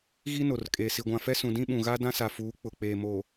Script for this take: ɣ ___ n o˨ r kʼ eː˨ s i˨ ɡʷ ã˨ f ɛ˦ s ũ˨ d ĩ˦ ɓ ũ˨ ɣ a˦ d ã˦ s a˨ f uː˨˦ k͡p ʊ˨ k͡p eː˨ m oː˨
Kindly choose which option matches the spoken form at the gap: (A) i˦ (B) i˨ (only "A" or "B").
A